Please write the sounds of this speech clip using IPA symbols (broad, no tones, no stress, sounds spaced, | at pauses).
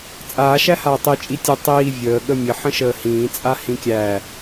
t͡sʼ aː ʃ æ h aː tˤ i t͡ʃʼ i tʲ ə tˤ iː vʲ əː ɠ ə mʲ ə ħ ə̃ ʃ əː h ĩː t͡sʼ a h ĩ kʲ æ